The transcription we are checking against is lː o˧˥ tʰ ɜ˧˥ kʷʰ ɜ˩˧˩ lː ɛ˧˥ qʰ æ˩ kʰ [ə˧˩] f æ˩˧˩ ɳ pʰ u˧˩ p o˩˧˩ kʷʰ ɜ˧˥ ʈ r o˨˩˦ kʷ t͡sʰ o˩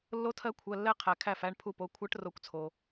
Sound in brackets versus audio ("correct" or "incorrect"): incorrect